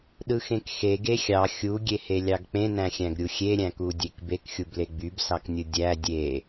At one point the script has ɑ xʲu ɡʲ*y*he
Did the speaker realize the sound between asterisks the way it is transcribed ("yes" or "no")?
no